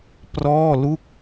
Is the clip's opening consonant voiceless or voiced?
voiceless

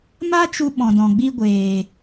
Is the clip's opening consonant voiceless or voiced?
voiced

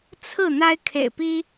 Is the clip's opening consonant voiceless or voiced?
voiceless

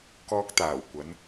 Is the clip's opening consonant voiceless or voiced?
voiceless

